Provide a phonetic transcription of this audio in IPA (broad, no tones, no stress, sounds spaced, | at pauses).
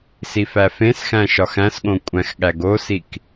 s i f æ f ẽ s x æ̃ ʃ ɒ x æ̃ s ɠ õ kʷʼ æ̃ x ɠ æ ɡ o s i k